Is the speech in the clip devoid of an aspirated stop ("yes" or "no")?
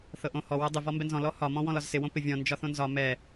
yes